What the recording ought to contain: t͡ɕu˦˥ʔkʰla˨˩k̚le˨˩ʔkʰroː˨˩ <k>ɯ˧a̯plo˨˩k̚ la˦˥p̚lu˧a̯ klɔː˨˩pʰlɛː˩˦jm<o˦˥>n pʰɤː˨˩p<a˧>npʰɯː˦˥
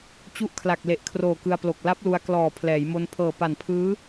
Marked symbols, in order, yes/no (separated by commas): yes, no, no